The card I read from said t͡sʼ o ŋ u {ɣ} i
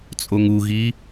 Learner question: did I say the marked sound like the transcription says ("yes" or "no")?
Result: yes